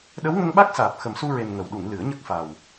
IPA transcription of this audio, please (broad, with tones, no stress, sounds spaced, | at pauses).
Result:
ɗ ə˧˥ w ŋ ə˧ ŋ ɓ a˦˥ k̚ s aː˨˩ p̚ x ə˨˩ m s u˧ ɹ e˨˩ n ŋ ə˨˩ w ɗ u˨˩˨ ŋ l ɨ˨˩˦ ə̯ ɲ ə˦˥ k̚ f a˨˩ w